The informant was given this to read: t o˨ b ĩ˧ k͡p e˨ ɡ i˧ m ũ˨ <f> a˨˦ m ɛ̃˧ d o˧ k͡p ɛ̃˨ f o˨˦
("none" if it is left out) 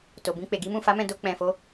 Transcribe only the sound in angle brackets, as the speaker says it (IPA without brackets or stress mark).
f